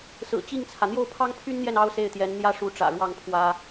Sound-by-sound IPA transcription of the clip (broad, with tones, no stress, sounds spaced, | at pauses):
s ɹ̩˨˩ t͡ɕ i˥˩ ŋ t͡sʰ ä˩ n̪ j o˥˩ ʊ̯ pʰ ɑ˥ ŋ pʰ y˥ n n̪ j ɛ˥˩ n ɑ˥ ʊ̯ s e˥˩ ɪ̯ t̪ j ɛ˧˥ n n̪ j ä˥ ʂ u˧˥ ʈ͡ʂ ä̰˨˩ ɻ w ɑ˥˩ ŋ pʰ w ä˥